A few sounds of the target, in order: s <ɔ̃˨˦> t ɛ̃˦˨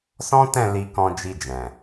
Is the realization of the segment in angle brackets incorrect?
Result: yes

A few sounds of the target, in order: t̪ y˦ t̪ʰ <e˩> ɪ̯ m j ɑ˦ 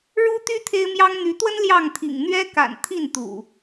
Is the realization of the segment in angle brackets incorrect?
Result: yes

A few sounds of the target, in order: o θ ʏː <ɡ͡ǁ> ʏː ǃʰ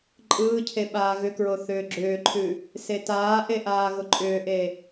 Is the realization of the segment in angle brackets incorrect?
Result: no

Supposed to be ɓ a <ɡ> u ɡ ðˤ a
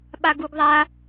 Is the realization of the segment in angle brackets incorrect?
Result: no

